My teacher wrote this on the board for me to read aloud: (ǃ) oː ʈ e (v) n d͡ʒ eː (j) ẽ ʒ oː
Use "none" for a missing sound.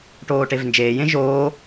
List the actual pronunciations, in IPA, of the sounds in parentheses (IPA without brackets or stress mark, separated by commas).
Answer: ʈ, v, j